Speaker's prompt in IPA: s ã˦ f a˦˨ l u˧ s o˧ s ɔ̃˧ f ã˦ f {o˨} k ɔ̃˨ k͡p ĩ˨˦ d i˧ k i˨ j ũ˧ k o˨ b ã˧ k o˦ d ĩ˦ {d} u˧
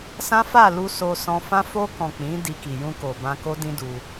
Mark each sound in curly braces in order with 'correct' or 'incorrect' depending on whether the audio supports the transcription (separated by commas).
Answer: incorrect, correct